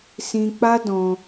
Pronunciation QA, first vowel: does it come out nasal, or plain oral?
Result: nasal